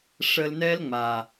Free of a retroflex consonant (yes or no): no